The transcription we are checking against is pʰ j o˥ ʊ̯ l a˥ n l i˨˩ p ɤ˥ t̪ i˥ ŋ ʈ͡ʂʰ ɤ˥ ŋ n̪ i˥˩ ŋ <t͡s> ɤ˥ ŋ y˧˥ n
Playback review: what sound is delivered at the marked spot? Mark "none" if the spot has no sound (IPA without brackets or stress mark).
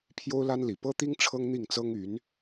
t͡s